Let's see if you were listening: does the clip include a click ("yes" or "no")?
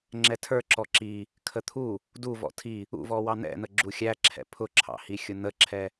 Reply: yes